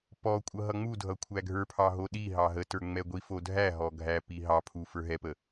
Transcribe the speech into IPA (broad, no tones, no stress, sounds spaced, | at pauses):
p ɔ kʷʼ ʌ ɦ ʌ ŋ͡m u dʱ ʌ kʷʰ æ ɡʱ ə˞ pʰ ɑ ɦ o ɗ i ɦ ɑ ɦ ə t ə˞ ŋ͡m ɛ ɡʷ i f o dʱ æ ɦ ɔ ɡʱ æ p i ɦ ɑ pʰ u f ə˞ ɦ ɛ p ə